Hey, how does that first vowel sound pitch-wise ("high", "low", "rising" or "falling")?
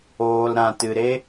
low